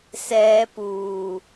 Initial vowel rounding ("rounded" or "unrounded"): unrounded